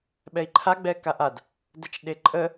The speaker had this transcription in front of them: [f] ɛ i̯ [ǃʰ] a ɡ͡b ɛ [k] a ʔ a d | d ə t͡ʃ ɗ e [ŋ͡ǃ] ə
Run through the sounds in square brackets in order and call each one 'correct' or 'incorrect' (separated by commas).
incorrect, correct, correct, incorrect